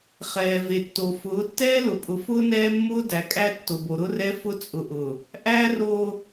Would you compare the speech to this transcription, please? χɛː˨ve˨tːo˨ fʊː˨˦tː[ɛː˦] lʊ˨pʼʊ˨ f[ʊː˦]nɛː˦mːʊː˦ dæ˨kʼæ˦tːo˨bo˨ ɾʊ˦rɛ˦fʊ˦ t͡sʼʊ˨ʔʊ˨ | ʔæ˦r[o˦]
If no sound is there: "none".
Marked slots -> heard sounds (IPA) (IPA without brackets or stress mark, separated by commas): ɛː˦, ʊː˦, o˦